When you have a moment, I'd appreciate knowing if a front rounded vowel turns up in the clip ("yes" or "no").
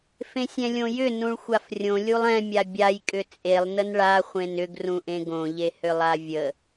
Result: yes